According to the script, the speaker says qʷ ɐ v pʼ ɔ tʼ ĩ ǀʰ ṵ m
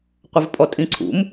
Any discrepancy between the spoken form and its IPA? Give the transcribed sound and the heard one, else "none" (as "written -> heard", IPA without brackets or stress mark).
none